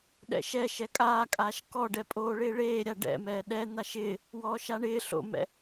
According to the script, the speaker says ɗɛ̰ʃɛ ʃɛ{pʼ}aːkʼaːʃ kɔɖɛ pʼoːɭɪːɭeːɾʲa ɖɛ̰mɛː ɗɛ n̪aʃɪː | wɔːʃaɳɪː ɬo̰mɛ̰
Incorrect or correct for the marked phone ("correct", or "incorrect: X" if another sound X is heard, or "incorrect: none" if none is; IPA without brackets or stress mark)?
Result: incorrect: kʼ